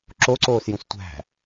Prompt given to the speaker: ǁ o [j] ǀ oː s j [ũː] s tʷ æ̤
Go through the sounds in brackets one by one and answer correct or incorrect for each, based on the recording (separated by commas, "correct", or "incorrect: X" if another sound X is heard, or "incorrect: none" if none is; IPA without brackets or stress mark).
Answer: incorrect: none, incorrect: ũ